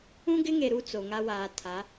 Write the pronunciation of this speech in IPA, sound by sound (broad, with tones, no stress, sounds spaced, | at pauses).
ũ˦ ɡ ɪ˦ ŋ e˨ ɾ u˦ t͡s o˨ ŋ a˦ w aː˨ tʰ a˨˦